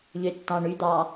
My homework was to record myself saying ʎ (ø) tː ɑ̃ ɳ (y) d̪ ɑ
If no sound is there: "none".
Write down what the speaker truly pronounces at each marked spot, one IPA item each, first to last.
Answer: ø, y

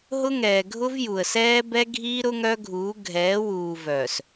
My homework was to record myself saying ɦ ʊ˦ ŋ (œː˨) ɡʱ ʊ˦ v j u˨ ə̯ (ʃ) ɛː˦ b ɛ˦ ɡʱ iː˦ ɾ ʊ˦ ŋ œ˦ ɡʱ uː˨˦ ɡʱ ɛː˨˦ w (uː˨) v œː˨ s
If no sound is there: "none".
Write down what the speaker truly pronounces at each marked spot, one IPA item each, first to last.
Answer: ɛː˨, s, uː˨

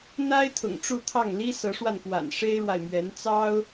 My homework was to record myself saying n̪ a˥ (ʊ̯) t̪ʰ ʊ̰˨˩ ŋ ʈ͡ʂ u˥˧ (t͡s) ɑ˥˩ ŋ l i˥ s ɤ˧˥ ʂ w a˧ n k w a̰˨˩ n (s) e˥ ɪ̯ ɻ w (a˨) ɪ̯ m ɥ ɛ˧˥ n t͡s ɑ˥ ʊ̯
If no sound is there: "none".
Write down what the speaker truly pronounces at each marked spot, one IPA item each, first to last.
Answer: ɪ̯, t̪ʰ, ʂ, a˨

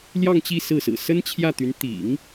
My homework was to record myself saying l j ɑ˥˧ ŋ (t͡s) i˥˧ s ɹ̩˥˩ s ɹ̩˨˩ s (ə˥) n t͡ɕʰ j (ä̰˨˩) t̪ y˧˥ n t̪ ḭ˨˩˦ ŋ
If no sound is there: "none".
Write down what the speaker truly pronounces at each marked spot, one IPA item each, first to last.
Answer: t͡ɕ, ə˥, ä˥˩

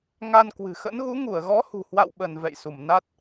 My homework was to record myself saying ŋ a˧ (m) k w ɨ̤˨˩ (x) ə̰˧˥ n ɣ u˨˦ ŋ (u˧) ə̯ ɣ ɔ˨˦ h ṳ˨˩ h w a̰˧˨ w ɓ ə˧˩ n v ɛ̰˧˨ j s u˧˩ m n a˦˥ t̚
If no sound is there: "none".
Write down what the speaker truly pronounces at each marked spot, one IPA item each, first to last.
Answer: n, x, u˧˩

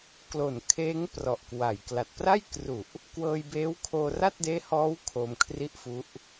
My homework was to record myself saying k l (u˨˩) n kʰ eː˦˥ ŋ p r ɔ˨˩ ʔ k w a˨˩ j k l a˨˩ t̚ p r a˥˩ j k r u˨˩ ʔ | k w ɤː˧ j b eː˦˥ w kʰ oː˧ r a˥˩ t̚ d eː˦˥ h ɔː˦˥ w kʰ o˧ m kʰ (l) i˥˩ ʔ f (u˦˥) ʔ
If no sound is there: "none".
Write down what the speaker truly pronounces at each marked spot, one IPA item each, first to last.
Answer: o˨˩, r, u˦˥

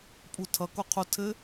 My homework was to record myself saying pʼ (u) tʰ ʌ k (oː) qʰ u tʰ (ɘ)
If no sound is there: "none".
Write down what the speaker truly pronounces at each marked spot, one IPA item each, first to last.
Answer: u, o, ɘ

